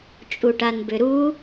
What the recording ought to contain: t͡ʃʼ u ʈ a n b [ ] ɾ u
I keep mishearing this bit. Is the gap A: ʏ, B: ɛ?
A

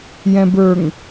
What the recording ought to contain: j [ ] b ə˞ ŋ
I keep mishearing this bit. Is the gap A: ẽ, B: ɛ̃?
B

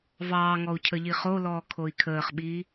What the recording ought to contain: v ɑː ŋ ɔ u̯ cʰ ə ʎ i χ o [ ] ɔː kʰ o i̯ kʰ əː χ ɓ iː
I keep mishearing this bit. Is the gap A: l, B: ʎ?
A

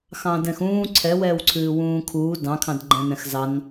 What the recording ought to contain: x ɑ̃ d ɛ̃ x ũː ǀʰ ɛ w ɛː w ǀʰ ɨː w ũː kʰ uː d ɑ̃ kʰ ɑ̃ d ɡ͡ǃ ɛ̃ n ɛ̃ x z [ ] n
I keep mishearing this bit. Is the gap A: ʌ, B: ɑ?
B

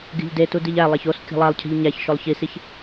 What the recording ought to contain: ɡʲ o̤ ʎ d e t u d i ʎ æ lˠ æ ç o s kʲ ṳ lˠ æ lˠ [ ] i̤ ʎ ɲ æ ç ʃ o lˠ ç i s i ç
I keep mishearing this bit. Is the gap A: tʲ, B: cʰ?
B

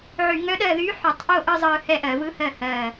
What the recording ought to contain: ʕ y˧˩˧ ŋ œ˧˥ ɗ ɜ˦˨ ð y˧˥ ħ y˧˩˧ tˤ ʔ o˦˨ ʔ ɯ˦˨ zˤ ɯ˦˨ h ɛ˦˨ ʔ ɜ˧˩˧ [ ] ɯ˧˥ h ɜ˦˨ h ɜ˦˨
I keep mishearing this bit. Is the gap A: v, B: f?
A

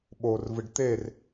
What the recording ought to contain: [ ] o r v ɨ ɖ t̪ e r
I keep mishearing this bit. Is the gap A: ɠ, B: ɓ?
B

